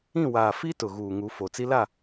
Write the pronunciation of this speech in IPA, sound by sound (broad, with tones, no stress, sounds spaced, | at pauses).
ĩ˦˨ w aː˨ f i˦ t ʊ˨ ɣ uː˨ ŋ u˨˦ f o˨ t͡s i˦ l a˦˨